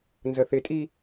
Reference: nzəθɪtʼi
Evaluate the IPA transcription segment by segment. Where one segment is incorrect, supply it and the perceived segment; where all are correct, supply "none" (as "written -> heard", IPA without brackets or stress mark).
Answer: none